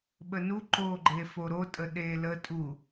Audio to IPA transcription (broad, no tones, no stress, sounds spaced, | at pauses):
ɓ ə n u ǃ o ɡ͡ǃ e f o ɾ o tʼ ə ɗ e l ə tʼ u